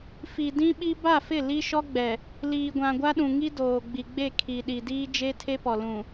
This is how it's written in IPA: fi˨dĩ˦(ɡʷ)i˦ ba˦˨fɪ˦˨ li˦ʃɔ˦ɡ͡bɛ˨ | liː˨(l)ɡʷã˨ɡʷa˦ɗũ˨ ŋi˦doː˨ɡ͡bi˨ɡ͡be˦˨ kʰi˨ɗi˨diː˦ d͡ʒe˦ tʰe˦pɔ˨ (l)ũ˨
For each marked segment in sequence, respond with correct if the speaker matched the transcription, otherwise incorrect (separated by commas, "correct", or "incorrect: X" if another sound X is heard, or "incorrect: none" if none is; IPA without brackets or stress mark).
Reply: incorrect: ɓ, incorrect: none, correct